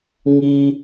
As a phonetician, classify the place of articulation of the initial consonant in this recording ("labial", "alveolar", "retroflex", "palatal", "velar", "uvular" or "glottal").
velar